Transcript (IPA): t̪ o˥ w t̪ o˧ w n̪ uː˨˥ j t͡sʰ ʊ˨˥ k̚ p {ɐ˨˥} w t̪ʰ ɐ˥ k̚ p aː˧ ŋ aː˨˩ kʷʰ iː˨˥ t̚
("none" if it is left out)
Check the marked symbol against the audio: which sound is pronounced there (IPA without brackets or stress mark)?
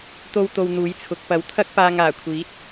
ɐ˨˥